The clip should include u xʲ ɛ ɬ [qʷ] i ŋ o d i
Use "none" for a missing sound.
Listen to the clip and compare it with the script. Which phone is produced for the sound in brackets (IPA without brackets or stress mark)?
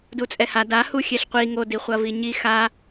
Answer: qʷ